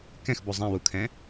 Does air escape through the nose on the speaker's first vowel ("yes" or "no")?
yes